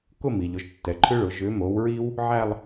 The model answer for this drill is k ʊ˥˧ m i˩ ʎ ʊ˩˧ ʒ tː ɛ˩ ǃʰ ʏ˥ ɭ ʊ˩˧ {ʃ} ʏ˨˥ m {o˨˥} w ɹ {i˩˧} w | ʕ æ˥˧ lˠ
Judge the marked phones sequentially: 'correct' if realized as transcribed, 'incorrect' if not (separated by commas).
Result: incorrect, correct, incorrect